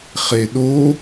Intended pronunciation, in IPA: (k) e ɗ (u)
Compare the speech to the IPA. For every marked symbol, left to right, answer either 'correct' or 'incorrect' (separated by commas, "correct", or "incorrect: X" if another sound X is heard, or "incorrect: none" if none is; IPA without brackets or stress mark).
incorrect: χ, incorrect: o